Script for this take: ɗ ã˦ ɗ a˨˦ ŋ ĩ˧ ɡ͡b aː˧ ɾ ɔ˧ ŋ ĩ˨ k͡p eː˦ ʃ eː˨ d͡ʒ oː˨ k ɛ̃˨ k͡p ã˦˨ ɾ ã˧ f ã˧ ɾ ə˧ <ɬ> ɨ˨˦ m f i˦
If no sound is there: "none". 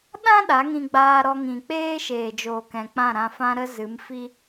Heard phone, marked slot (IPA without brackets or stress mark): z